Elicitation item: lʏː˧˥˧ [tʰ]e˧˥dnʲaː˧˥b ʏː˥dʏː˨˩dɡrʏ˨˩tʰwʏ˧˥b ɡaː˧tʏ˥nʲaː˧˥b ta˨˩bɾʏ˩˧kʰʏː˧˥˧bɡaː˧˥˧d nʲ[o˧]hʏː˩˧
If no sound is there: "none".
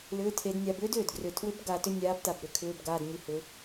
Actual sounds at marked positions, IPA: tʰ, o˧

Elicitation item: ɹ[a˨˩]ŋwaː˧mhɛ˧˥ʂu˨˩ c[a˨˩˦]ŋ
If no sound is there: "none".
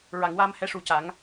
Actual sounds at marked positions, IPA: a˨˩˨, a˨˩˦

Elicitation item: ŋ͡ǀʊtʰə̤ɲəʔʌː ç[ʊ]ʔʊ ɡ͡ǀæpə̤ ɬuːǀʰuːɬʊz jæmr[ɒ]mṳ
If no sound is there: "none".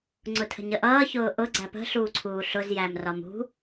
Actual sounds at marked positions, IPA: ʊː, ɒ

